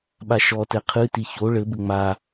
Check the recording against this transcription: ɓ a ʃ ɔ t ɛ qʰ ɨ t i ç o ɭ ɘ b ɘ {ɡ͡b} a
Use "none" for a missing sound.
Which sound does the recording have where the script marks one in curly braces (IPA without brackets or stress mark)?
ŋ͡m